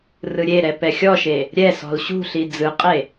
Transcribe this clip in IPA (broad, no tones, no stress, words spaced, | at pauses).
rɯɾʲeɾɛ pɛxʲɔʃe | ɾʲɛsɔ̤l ɕṳɬi d͡zɯqʼe